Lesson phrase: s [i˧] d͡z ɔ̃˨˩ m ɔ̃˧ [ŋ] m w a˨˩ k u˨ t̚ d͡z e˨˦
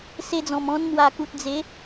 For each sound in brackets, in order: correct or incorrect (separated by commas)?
incorrect, incorrect